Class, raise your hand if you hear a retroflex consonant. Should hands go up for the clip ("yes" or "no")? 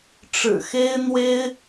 yes